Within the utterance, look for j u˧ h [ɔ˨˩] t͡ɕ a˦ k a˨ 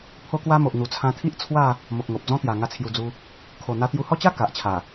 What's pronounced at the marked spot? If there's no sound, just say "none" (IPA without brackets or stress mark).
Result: ɔ˦